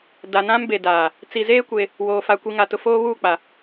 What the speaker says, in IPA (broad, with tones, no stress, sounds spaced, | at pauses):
d a˨ n ã˦ m b e˨ d aː˨ | t͡s i˨ z eː˦ kʷ e˦ | w oː˨ f a˨ kʷ i˨ ŋ a˨ t ʊ˨ f oː˦ β uː˦˨ k͡p a˨